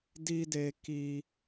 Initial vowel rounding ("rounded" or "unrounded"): unrounded